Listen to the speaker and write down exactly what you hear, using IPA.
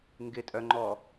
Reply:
ŋ ɡ ɪ tʼ œ ŋ͡ǃ ɔ

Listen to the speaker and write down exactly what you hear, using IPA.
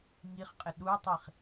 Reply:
ŋ i χ qʼ ɪ ɗ u tˤ i χ

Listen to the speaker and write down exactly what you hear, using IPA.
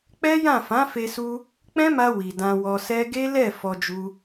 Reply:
k͡p ɛ˦ j ã˦˨ f ã˨˦ f e˧ s u˧ | k͡p ɛ̃˦ m a˧ w i˨ d ã˧ w ɔ˧ s ɛ˦ ɡ e˦ l ɛ˦˨ f ɔ˧ d͡ʒ u˧

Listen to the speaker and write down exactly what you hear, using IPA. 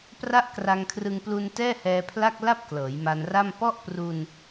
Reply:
p r a˦˥ ʔ k r a˧ ŋ kʰ r ɯ˧ ŋ p l u˧ n t ɛː˥˩ h ɛː˧ pʰ l a˥˩ k̚ l a˥˩ p̚ k l ɤː˩˦ j m a˧ n r a˥˩ m p ɔ˥˩ ʔ p r u˧ n

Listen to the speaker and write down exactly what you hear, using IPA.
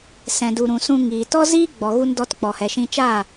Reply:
s ɛ̃˨ d u˨ ɾ ũ˨ s ũ˧ ŋ iː˨ t ɔ˦ z iː˦ ɡ͡b ɔ˨ ɣ u˧ n d ɔ˧ t k͡p ɔ˨ h ɛ˨ ʃ ĩ˧ t͡ʃ aː˦˨

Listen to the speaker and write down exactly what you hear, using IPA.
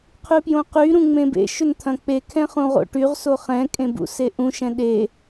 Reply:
qʰ y p j õ q y ɾ ũ ŋ͡m ẽ b ḛ ʃ ʏ n t̪ʰ ɐ̃ k͡p e kʰ ɛ̃ χ ũ ʁ o̰ ʈ y ʁ s o χ ɛ̃ kʼ ẽ b ṵ s e ʔ ũ ʃ ɛ̃ ɗ e

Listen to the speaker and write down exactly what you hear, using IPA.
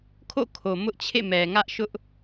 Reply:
kʰ o̰˦˨ kʰ o˨ m ʊ˦ ʔ t͡ɕʰ ḛ˦˨ m ɛ˨ ŋ ä˦ ʔ ʃ ʊ˦ ʔ

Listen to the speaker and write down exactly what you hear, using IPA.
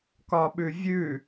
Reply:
k ɒ ɓ ʉ vʲ ʉ

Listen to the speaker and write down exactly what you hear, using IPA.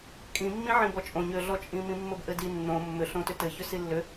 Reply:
kʼ ĩ mː ĩ ʕ ĩ b ɔ t͡ʃʼ õ ɲ ʏ ɮ ɔ t͡ʃʼ ĩ m ĩ mː ɘ b ʔ ɘ d i nː õ mː ʏ ɬ õ t ʏ t ɘ ç ʏ s i lː ʏ

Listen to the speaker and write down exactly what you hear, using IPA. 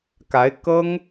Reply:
k a˧˥ ɪ̯ k ɤ˥ ŋ

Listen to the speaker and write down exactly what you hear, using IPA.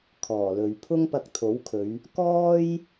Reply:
kʰ ɔː˨˩ l ɵ˨˧ ɥ pʰ ʊ˥ ŋ p ɐ˧ k̚ t̪ʰ o˨˥ w kʰ ɵ˨˧ ɥ | k ɔː˥ j

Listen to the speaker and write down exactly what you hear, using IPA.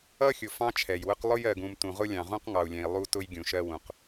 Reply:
ʌ˦ xʲ ʊ˨ f ɑ̃˦ t͡ʃʰ ɛ˨ j w ʊ˦ q lˠ ʊ˦ j ɜ˨ ɡ ũ˨ m t ũ˨ ʁ ʊ˦ lʲ ɑ̃˨ ʁ ũ˦ q ŋ ɑ˨ u̯ lʲ ɛ̃˨ i̯ lˠ u˦ t ʊ˦ j ɡʲ ũ˨ ʃ ɜ˦ w ũ˨ q

